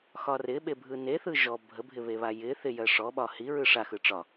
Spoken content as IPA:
x ɒ r ɪ ɓ e bʱ ɯ n e θ ɯ ʒ ɔ bʱ ə bʱ ɪ β e β a j ɪ θ ɪ j ɜ ʂ ɔ ɓ ɒ h i ɹ ɯ ʂ a x ɯ ʈ͡ʂ ɒ

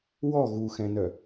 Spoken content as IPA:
w ɔ ɣ u x ɛ̃ n œ

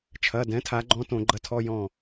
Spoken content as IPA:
t͡ʃʰ ɐ˩˧˩ d ɛ̃˩˥ tʰ a˩˥ ɡ͡ǃ ɔ̃˧˥˧ t õ˧˩˧ ɡ͡ǃ ɐ˧˥˧ tʰ ɔ˧˥˧ j ɔ̃˥˨

